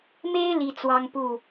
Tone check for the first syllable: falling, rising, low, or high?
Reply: high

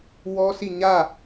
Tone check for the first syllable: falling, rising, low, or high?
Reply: high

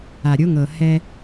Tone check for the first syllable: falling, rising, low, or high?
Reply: low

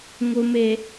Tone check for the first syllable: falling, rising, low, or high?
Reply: low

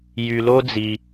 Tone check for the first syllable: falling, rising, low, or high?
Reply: low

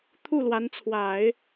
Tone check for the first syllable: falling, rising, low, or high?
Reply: falling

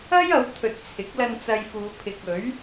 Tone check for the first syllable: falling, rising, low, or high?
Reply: high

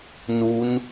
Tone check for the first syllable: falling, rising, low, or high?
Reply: rising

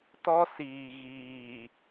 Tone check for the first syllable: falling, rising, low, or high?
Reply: high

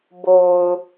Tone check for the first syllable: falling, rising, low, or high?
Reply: low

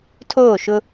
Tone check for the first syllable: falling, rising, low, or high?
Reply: falling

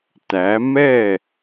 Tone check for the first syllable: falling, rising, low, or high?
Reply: rising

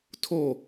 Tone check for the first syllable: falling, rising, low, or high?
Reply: falling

